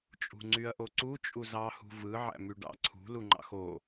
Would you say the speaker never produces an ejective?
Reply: no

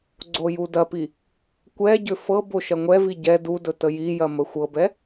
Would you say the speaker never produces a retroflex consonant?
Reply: yes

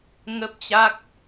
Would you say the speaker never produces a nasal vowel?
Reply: yes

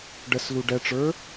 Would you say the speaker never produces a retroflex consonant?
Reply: no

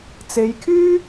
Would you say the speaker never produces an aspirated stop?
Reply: no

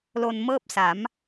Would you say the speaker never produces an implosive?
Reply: yes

